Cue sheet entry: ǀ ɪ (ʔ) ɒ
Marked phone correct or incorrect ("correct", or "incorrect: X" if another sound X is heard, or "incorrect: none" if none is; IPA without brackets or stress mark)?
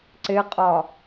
incorrect: qʼ